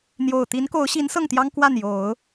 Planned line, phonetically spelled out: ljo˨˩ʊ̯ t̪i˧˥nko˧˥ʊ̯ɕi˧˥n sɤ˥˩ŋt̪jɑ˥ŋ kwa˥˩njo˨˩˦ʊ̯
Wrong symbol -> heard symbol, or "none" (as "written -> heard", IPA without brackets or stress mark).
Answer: l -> n̪